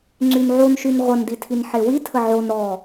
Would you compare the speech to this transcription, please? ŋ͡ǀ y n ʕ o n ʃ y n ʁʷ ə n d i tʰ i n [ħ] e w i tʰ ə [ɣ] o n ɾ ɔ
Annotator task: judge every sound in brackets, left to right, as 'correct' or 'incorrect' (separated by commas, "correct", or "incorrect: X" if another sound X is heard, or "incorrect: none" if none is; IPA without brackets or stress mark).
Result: correct, incorrect: ʕ